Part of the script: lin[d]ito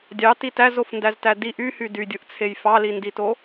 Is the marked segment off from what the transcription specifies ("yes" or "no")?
no